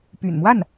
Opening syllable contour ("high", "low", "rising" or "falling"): low